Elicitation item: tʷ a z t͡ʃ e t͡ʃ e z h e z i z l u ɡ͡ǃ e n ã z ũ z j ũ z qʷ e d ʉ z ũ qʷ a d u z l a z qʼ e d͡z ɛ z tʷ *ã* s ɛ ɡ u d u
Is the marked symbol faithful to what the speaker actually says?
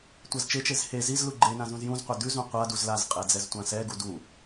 yes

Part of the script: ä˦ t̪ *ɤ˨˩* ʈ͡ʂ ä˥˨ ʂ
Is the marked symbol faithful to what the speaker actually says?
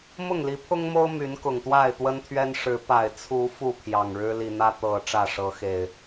yes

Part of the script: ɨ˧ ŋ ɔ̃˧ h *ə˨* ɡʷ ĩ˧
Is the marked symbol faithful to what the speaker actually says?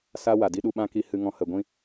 yes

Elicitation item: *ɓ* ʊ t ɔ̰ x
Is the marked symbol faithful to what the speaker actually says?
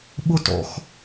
yes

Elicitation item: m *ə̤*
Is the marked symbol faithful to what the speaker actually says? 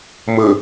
no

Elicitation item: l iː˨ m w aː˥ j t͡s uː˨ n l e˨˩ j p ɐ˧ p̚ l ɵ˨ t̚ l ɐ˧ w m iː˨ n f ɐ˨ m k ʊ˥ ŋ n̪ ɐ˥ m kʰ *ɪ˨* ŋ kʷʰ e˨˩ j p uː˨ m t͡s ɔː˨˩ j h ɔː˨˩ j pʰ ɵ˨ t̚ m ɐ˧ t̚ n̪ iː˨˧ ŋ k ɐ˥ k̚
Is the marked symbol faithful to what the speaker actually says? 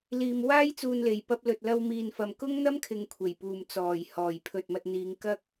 yes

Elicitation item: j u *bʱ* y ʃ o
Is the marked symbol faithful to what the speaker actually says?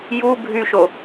yes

